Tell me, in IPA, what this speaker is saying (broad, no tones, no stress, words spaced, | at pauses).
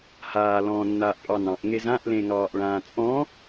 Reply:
haː lɔ̃ːnːaːʔpʼɑnɑ̃ʔ ŋezãʔ lẽŋɑːʔɭãːt͡sʼɔ̃